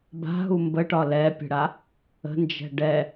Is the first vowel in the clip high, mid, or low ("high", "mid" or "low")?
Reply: low